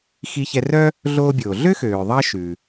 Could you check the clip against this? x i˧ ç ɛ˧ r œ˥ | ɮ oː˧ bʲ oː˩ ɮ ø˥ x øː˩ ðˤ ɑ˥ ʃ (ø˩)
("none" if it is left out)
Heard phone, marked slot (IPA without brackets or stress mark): ʉ˩